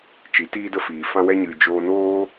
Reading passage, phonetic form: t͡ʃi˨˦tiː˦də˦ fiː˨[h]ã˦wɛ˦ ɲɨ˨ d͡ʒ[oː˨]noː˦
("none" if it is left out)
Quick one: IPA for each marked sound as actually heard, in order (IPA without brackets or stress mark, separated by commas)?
f, oː˧